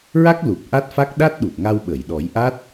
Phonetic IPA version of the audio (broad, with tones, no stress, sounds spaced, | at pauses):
ɹ a˦˥ k̚ l u˨˩ p̚ ʔ a˦˥ t̚ f a˦˥ k̚ ɗ a˦˥ t̚ ɗ u˨˩ t̚ ŋ a˧ w ɓ ə˨˩˨ j ɗ ɔ˨˩˦ j ʔ a˦˥ t̚